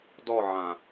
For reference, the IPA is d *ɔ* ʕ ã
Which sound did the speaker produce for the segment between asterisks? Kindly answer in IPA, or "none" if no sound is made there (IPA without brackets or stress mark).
ɔ